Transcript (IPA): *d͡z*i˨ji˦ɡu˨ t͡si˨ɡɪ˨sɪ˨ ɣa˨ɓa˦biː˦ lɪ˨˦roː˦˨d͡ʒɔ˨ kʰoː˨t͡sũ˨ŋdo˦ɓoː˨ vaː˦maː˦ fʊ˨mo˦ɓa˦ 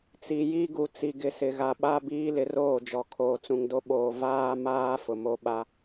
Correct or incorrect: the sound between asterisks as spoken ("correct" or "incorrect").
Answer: incorrect